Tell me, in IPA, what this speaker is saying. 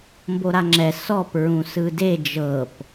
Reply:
mboɾaŋ͡ǁɛ sɔp ɹũsɯde d͡ʒɤp

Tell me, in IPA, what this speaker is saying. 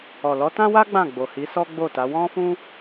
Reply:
ɔ˨lɔ˨˦ tã˦wa˦ ɡ͡bã˦˨ɡ͡bo˨hi˨˦sɔ˦ ɡ͡bo˦˨ta˨˦ wɔ̃˦fũ˦

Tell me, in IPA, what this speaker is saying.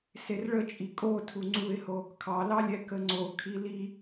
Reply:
serɭət͡ʃʼi kʼotʰu ŋ͡ǀuɪ̯ho | kʰɑlɑlʲɛ kəŋ͡ǀo kʰili

